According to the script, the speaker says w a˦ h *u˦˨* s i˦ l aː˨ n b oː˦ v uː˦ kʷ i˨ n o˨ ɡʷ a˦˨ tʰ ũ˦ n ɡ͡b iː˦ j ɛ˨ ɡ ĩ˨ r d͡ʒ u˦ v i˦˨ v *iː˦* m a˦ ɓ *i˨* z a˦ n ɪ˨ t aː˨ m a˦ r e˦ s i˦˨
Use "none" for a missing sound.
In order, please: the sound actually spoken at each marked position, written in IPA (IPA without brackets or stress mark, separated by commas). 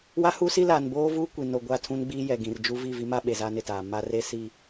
u˦, i˦, e˨